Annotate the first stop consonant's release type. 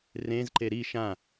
click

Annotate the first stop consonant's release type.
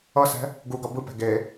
plain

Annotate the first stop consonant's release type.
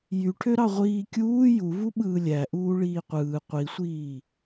aspirated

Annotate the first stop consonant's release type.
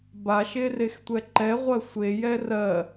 plain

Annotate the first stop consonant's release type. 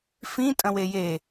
ejective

